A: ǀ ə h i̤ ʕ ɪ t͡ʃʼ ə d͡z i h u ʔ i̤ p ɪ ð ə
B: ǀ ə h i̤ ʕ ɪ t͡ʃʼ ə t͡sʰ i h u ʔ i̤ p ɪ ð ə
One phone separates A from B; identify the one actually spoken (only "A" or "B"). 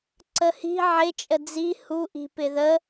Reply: A